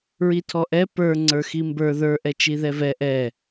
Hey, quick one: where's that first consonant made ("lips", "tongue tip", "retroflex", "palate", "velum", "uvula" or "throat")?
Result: tongue tip